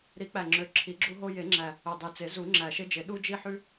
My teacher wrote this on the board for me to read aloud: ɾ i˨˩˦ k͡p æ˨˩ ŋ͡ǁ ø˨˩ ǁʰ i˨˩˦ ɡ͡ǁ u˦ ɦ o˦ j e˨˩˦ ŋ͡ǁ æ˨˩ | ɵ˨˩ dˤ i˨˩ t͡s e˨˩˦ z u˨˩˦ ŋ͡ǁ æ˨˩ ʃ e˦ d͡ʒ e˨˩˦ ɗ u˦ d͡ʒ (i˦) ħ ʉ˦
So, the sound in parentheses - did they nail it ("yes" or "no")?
yes